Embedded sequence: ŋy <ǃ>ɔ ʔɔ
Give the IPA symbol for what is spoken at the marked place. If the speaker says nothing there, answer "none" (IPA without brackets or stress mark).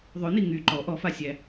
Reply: ǃ